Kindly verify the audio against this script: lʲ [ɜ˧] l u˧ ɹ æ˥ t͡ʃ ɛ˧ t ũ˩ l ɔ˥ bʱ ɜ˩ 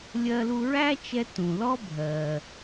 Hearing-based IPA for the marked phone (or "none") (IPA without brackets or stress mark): ɜ˧